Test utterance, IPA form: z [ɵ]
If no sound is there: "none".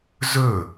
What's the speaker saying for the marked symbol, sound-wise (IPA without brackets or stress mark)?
ɵ